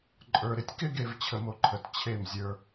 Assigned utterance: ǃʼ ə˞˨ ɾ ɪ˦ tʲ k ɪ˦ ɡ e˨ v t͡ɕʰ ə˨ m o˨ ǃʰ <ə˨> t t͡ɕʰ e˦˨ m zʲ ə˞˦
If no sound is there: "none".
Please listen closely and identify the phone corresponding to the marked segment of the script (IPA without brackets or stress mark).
ə˨